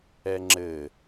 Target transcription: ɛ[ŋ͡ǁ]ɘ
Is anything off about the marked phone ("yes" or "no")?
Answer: no